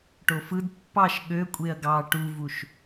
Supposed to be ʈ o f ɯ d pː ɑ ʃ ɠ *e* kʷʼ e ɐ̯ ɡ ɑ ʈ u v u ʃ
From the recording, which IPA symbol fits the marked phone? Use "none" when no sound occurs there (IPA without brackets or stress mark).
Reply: ø